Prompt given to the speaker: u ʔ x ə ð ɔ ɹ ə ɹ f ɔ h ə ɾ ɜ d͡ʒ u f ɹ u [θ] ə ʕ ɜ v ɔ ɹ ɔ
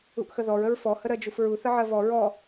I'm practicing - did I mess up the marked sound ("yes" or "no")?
no